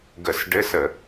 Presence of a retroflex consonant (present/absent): present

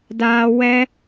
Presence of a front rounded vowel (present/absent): absent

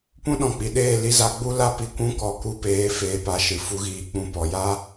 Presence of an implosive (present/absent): present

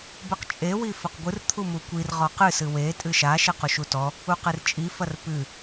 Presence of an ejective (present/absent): present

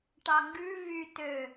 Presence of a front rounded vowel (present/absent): present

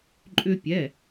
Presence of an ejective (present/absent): present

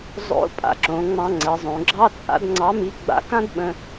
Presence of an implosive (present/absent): present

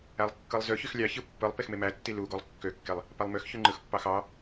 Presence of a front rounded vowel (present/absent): present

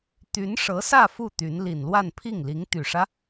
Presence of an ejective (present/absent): absent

